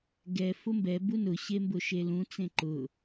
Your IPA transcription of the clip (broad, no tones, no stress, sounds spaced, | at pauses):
ɡ ɛ f ʊ m b ɛ b u n ʊ ɕ e m b ʊ ʃ e l ũ t͡s ẽ ǃ ʊ